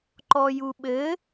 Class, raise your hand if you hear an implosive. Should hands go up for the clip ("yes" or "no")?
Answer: yes